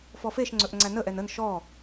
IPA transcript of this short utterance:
f ɔ f e ʃ ŋ͡ǀ ɵ ʔ ŋ͡ǀ æ n ə ʔ ɛ n ə n ʃ ɔ

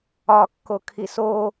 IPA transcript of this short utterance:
ɒ kː o kʰ i s o

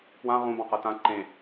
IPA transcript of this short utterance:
p w ã ʁ ũ b ɑ̃ q ɤ t ã ǃ ẽ

